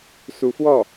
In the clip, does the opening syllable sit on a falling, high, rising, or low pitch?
rising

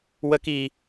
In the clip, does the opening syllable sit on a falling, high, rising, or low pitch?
high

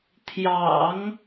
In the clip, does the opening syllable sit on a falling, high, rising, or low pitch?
low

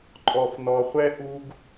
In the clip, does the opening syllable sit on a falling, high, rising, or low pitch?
low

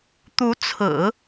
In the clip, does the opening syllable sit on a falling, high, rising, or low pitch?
rising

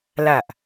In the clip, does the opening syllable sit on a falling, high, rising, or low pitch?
low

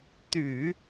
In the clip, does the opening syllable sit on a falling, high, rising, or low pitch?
low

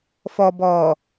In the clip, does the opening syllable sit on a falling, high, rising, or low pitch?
low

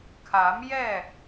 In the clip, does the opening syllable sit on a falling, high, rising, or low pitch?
rising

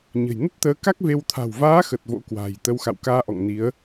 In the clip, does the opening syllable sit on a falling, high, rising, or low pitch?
low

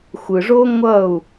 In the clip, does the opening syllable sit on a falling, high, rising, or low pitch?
low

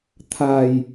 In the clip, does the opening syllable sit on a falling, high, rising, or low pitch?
low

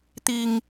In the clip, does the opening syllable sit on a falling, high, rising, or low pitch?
low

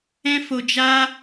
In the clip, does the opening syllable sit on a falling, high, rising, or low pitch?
high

